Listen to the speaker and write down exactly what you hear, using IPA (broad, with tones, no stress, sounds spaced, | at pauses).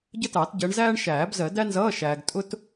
ɟ ə˥ t ɑ˨˩˦ t ɟ ɜ˨˦ ɳ z æː˥ ɳ ʃ æː˨˩˦ b z ɜ˨˩˦ d æ˥ n z ʌː˧˥˧ ʃ æː˨ ɡ tʼ ʊ˥ t